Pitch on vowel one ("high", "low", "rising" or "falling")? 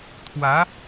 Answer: rising